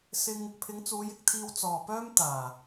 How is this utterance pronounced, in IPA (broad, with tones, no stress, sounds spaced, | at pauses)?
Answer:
s ɪ˧ ŋ | pʰ ɪ˨˧ ŋ t͡s uː˨˧ j ɪ˨ k̚ t̪ʰ iː˧ w t͡s ɔː˨ p œː˥ m t̪ aː˨˩